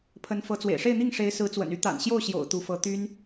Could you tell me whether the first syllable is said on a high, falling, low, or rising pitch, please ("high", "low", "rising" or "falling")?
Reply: rising